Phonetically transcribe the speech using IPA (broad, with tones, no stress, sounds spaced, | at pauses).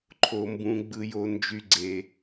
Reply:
ǃʰ o˩ m b ũ˩ ɡ͡b ɯ˩ j o˩ n d͡ʒ y˩ ɡ͡ǀ e˩